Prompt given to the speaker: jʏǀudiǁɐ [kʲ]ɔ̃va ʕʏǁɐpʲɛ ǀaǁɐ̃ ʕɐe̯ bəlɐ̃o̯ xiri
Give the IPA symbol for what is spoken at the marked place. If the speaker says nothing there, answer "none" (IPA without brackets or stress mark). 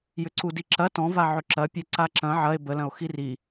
t